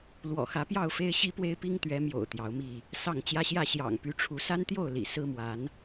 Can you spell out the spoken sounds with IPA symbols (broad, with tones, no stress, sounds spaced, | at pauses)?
l w ɔ̰˨˩ x ä˨˦ p j ɑ˥˨ ʊ̯ f e˦ ɪ̯ ɕ i˦ p w e˦ ɪ̯ p i˦ ŋ t̪ ɥ ɛ˨˦ m j o̰˨˩ ʊ̯ t̪ j ɑ˨˦ ʊ̯ m i˥˨ | s ɑ˥˨ ŋ t͡ɕ j ä˦ ɕ j ä˥˨ ɕ j ɑ̰˨˩ ŋ p y˨˦ ʈ͡ʂʰ u˨˦ s a˦ n t̪ j o˥˨ ʊ̯ l ḭ˨˩ s ɹ̩˦ m w a˨˦ n